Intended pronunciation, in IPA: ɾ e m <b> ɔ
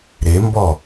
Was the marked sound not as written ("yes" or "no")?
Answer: no